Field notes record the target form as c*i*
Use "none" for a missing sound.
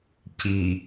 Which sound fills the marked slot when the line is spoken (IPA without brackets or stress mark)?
i